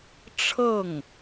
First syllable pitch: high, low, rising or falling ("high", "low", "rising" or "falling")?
falling